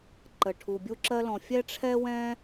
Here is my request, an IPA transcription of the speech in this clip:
ǃə˩ʈʰu˩ bʲu˥ǁɜ˥lɔ̃˩ fʲɛ˥ʈ͡ʂʰɛ˥wɛ̃˥

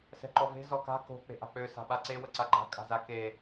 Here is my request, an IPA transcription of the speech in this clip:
sɛ̤ǃɔve̤ zɔka̤ ko̤ k͡pe̤ʔa̤k͡pø sa̤ɓaǀe wəǀaɡ͡ǃa̤ kʼa̤zake

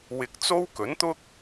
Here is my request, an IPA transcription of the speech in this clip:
wɪ˨k̚t͡so˥w kɵ˨˥nt̪ʊ˥k̚

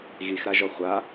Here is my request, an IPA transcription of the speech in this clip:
ɣixɾaʒɔ χʷa

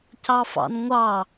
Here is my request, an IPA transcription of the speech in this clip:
cɑfɑ̰nŋʷɑ

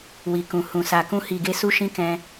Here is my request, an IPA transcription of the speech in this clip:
wi˨kũ˨ hũ˨ sa˨kũ˧hi˨ɡe˧ su˦ʃĩ˦ kɛ̃˧

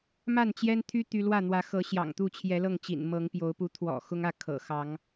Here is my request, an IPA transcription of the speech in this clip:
ma˥˨nt͡ɕjɛ˦nt̪ʰy˦ t̪y˦ lwä˥˨n̪wä˨˦xɤ˨˦ ɕjɑ̰˨˩ŋt̪u˥˨t͡ɕʰjɛ˨˦lɤ˥˨ŋ t͡ɕḭ˨˩nmɤ˨˦ŋpjo˨˦ʊ̯pu˨˦ t̪ʰwɔ̰˨˩xʊ˦ŋä˥˨ kʰɤ̰˨˩xɑ˨˦ŋ

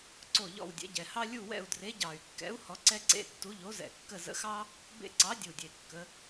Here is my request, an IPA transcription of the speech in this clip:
ǀo˦˨ ʎɔ̰˦˨wdʲɛ̰˨˥ ɟɛ˨˩hɑ˥ lʲu˦˨wɛ̰˦˨u̯ dre˨˥ɟɑ˨˩y̯kːɛ̰˨˥u̯ hɔ˨˥ǀɛ˥ǀḛ˧˥˧tːu˨˥ ʎo˨˥zɛ̰˨˩kːə˦˨ zə̰˧˥˧xɑ˥ | bḛ˦˨ǀɑ˨˥dʲu˨˩dʲe˨˩ kːə˨˥

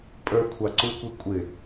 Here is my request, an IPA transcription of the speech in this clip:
pʼə˞kʷʰɑ ǀukʷi kʷʼɪ

